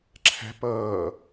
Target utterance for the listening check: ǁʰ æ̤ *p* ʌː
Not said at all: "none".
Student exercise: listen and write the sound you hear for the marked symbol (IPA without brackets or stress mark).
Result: p